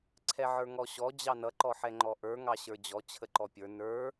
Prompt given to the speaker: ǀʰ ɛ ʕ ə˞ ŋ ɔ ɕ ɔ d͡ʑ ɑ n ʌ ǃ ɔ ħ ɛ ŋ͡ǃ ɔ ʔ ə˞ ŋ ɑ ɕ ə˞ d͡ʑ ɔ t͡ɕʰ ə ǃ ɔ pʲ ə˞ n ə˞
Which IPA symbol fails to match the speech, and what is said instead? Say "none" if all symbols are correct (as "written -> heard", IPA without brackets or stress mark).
none